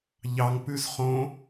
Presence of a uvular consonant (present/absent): present